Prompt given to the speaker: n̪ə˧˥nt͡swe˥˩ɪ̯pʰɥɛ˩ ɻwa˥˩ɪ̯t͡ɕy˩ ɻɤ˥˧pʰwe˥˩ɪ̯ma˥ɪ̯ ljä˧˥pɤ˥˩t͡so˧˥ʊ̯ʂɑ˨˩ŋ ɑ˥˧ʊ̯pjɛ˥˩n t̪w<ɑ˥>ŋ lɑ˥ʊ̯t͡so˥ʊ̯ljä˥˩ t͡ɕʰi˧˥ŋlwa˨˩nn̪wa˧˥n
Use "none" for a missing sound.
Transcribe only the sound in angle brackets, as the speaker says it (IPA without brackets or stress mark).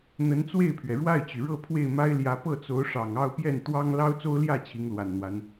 ɑ˥